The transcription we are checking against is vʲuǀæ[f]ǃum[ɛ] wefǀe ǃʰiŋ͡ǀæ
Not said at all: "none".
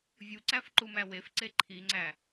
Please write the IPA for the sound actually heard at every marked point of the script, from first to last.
f, æ

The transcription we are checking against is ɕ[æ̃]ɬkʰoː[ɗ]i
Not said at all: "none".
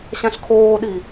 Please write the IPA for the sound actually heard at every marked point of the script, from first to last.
æ̃, ɗ

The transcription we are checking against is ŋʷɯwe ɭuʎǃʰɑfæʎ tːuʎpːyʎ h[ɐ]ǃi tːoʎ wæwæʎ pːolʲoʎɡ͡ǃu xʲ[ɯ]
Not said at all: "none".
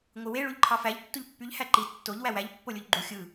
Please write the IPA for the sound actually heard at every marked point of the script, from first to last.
æ, ɯ

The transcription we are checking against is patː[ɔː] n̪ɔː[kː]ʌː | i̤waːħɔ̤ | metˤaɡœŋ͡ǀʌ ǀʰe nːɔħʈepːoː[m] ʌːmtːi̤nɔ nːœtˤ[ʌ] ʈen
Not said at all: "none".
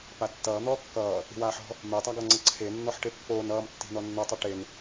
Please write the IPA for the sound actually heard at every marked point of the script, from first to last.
ʌː, kː, n, ʌ

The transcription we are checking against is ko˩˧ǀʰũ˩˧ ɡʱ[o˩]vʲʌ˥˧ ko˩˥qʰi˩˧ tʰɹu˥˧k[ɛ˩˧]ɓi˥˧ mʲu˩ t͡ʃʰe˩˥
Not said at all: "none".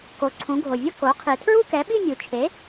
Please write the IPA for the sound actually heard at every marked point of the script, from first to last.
o˩, ɛ˩˥

